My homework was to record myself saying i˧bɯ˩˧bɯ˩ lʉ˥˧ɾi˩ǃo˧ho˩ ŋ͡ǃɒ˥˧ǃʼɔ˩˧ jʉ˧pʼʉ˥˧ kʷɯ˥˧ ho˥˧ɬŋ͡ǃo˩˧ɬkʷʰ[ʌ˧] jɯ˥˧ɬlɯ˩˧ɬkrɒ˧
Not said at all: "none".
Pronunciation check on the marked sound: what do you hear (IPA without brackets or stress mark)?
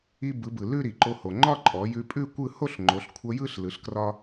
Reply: ʌ˧